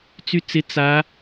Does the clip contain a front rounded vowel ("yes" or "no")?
yes